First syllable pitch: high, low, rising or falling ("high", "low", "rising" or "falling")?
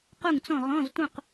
falling